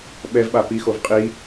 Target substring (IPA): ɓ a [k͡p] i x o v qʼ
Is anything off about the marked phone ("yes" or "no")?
yes